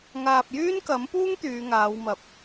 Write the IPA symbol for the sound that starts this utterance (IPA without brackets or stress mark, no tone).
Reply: ŋ